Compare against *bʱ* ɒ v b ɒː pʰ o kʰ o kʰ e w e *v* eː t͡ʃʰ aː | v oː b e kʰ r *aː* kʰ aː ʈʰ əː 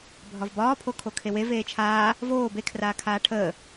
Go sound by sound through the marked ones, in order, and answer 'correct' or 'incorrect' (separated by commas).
correct, correct, correct